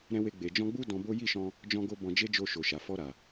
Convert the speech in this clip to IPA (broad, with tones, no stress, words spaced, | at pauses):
ɾɛ̃˧we˧ɡ͡be˨ d͡ʒɔ̃˧ɡ͡bu˦ dɔ̃˧bo˦ ji˦˨ʃɔ̃˧ | d͡ʒɔ̃˦ɡo˦bɔ̃˧ d͡ʒe˦d͡ʒo˧ ʃo˨ʃa˨fɔ˧ɾa˨